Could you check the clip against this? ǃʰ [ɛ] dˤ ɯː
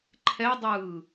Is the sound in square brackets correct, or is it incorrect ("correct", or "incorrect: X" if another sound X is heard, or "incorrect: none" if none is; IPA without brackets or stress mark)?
correct